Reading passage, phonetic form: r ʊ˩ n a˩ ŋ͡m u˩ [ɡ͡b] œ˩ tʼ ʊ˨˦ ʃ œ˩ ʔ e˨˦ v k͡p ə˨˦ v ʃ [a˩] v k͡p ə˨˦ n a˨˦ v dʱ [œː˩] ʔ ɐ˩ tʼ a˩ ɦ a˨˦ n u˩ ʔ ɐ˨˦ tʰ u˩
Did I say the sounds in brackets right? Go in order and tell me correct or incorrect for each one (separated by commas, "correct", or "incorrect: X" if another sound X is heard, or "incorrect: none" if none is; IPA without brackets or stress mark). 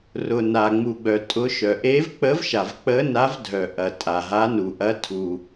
correct, correct, incorrect: œ˩